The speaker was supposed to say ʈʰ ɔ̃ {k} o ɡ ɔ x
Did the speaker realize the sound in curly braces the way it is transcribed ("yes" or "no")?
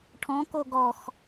yes